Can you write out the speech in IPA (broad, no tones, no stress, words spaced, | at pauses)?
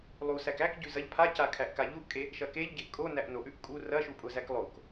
lˠusæk ækɟʉ zɐʎ pʰaca kʰæʔkaʎuʔkʼe | ʃɐkeʎɟeʔ kʼonæʔ noʔʉʔ kʼu rɐʃu pʼʊzæk lˠok